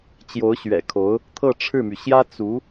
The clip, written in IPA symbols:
t͡ɕ j o˧˥ ʊ̯ ɕ ɥ ɛ̰˨˩ kʰ o˧˥ ʊ̯ | t̪ʰ ɤ˥˧ ʈ͡ʂʰ ɻ̩˥˩ m y˩ ɕ j ä˥ t͡s u˧˥

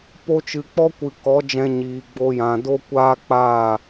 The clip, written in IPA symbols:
p o˧ t͡ʃ ɨ˨ k͡p ɔ˦ kʷ ɨ˨ k ɔ˨˦ d͡ʒ ɛ̃˧ ɲ iː˨ ɡ͡b o˧ j ã˨ d o˦ kʷ aː˦ k͡p aː˦˨

